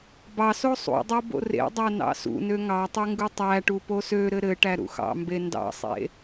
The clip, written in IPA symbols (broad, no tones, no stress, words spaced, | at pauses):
bɑso sˤṵdˤo bo̰rḛdˤæ nɑ̰sṵnø ŋɑtˤu ŋɡutˤæʈu posøɾɘ ɾɘʈæ ɾṵxɑ̰mbe ndɑ̰sˤḛ